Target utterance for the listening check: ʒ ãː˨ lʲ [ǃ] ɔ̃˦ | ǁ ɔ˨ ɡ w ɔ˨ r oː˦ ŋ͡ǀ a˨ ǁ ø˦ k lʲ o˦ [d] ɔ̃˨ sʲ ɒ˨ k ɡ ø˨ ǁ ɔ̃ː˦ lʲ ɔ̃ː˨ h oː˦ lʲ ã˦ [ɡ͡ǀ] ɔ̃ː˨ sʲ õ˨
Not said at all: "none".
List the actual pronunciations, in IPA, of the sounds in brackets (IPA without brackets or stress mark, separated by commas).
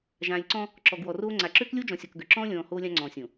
ǀ, d͡ʒ, ŋ͡ǀ